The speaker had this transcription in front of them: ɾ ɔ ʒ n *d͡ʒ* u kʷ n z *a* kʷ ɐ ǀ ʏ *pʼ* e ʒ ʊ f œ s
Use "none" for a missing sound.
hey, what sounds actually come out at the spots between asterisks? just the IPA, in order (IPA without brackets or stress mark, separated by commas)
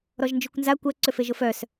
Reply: d͡ʒ, a, f